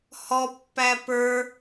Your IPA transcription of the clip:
h ɔ pː æ p ə˞

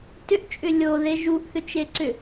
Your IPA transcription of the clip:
t ʏ ʔ t͡ʃʼ ʏ lʲ o ð e ʒ u ʔ θ ʏ t͡ʃ e ǀ ʏ

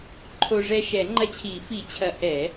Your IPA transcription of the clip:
ǃʰ o˧ ʐ ɛ˧ ʃ ɛ˨˩˦ ŋ͡ǃ ɐ˧ t͡ɕʰ i˨˩˦ f i˨˩˦ t͡ɕʰ ɐ˨˩˦ ʔ ɛ˨˩˦

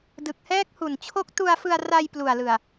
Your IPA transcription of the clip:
d ɯ˨˩ k̚ h ɛː˦˥ k̚ h u˨˩ n t͡ɕʰ o˦˥ k̚ t u˧ a̯ f ɯ˧ a̯ r a˧ j p l u˨˩ a̯ l ɯ˨˩ a̯

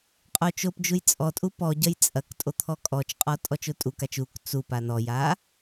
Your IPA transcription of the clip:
qʼ o t͡ʃ o p d͡ʒ u j t͡sʼ ɔ tʼ u p ɔ ɟ ɐ j t͡sʼ ɐ k tʼ o t̪ʰ ɔ kʼ ɔ t͡ʃ qʼ ɔ tʼ ɔ t͡ʃ o tʼ u k a t͡ʃ u k t͡s u p a n ɔ j a

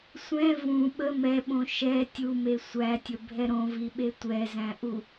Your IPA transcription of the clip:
sʷ ɛ̃ v ũ ɓ ə m ɛ ɓ õ ʃ ɛ tʲ u m e sʷ æ tʲ ə bʱ ɛ ɾ õ v i ɓ e tʷ ɛ z æ̃ ʔ u

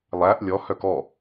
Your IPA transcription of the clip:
lˠ æ ʔ lʲ ɔ h œ k ɔ

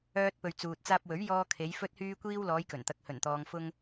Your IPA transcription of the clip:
œː˧ t̚ p ɵ˨ ɥ t͡s uː˨ t̚ t͡s aː˧ p̚ w ɵ˨˥ ɥ j ɔː˧ kʰ e˨˧ j f ɵ˧ t̚ h yː˧ kʷ iː˧ w l ɔː˨˧ j k ɵ˨˩ n t̪ ɐ˨ k̚ h ɵ˨˩ n t̪ ɔː˨ ŋ f ʊ˧ ŋ

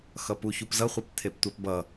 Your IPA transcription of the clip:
x ʌ p u ç u p z ʌ χʷ ʌ p t̪ʰ e p tʷ ɛ p b ʌ

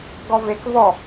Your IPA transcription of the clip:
ɡ ɔ v e k v ɔ

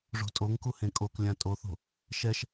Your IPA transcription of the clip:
ʐ o̤ tʼ o ŋ k u h ẽ kʼ o k lʲ ã tʼ o θ o̤ | ʃ ɛ ʃ

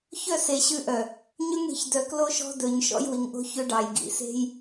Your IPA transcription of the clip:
ç œ˦˨ s e˨ ɕ ʉ˦ ʔ œ˨ | ɲ ø˦ ŋ ɽ i̤˨ ç d œ˨ k l o˦ ʃ ɔ̤˦ d ɵ˨ ɲ ʃ ɔ̰˦ j w i˨ ŋ ʔ o̤˦ ç ø˦ ɖ ɑ˨ j ɡ ḭ˨ s e̤˦ j

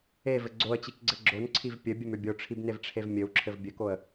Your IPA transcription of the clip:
e v ɘ ɡ͡ǀ o ə̯ t͡ɕ i k ɡ͡ǀ ɘ ɡ͡ǁ o n ǀʰ i v pʲ ɘ bʲ ɘ m ʏ bʲ o ʈ͡ʂʰ i b n e v ʈ͡ʂʰ e v mʲ ɘ w ǁʰ ɘ v bʲ ɘ k o ə̯

